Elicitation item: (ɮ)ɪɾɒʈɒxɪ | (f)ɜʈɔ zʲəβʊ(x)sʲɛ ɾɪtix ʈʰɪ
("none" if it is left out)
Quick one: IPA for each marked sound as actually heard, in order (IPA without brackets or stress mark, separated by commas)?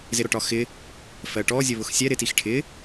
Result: z, f, x